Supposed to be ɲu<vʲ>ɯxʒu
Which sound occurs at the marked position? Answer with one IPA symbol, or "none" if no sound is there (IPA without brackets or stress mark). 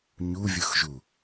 vʲ